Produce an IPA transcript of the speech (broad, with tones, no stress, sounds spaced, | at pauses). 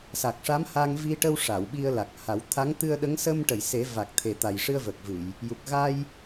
s a˨˩ k̚ ʂ a˧˥ m h a˧ ŋ v i˧ ʈ ə˧ w ʂ a˨˩˨ w ɓ i˧ ə̯ l a˨˩ k̚ h a˨˩˦ w t̪ʰ a˧˥ ŋ t̪ ɨ˧ ə̯ ɗ ə˧˥ ŋ s ə˧ m ʈ ə˨˩˨ j s e˨˩˦ v a˨˩ k̚ t̪ʰ e˨˩ t̪ a˨˩ j ʂ ɨ˧ ə̯ v ə˨˩ k̚ v ɨ˨˩˨ j | j u˨˩ k̚ ɣ a˧ j